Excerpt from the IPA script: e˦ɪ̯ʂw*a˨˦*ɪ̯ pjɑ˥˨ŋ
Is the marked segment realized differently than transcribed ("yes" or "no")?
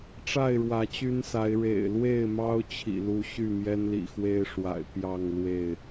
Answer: yes